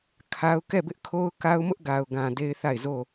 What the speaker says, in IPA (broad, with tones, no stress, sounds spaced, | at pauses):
kʰ a˦ ʊ̯ k ɛ˦˨ b ɪ˦ ʔ kʰ o˦ ʊ̯ k a˦ ʊ̯ m ʊ˦ ʔ ɡ a˨ ʊ̯ ɡ ã˨ d e˦ ɪ̯ θ a˦˨ ɪ̯ z o˦˨